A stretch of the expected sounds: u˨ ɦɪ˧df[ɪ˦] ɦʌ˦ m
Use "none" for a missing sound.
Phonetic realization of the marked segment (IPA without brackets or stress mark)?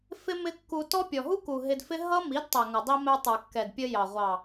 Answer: ɪ˦